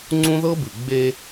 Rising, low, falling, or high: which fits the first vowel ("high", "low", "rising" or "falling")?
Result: high